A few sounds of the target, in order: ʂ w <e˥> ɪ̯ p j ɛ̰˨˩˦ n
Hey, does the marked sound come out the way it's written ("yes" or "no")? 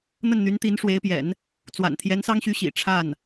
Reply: no